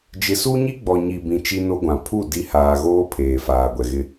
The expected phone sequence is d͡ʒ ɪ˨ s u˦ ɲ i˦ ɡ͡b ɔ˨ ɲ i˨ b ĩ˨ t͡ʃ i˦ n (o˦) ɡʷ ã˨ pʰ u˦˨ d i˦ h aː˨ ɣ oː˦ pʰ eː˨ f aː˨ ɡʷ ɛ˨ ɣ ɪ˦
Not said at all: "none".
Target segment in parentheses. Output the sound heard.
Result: o˦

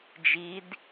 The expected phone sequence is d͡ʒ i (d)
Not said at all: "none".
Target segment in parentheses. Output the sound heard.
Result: d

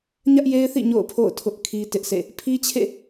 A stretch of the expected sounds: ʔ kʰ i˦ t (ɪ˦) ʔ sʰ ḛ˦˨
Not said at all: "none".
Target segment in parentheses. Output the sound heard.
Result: ɪ˦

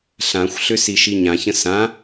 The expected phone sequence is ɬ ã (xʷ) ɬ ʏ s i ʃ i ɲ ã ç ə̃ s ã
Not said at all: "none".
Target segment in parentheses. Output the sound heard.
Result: xʷ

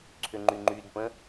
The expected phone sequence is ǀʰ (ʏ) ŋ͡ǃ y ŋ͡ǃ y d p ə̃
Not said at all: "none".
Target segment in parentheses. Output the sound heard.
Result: ʏ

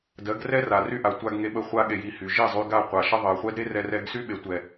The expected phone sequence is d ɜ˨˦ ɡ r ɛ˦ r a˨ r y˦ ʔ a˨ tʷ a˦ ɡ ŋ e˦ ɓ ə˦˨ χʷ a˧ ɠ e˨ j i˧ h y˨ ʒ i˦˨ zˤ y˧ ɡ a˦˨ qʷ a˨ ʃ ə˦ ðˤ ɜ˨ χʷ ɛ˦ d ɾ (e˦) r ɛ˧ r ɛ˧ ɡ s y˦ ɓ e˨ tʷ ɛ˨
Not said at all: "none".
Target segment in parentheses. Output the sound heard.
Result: e˦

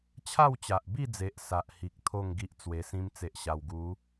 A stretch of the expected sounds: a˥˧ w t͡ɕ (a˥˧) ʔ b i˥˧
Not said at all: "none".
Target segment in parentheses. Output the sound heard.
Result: a˨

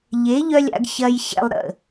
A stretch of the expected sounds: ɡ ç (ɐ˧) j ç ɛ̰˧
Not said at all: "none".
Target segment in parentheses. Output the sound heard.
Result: ɐ˧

